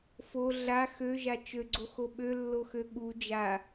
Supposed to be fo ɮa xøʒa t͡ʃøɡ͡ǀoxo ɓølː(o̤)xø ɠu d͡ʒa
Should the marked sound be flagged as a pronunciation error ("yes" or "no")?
yes